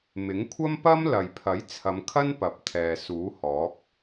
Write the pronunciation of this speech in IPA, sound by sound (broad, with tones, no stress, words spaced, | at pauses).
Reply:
mɪ˨˥ŋkʷʰɐ˥mpɐ˥m lɐ˨jpʰɐ˨˥j t͡sʰɐ˨˧mkʰɐ˥n pɐ˨p̚t̪ʰɛː˨ suː˨˥hɔː˨˥k̚